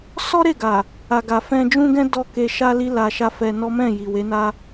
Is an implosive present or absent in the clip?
absent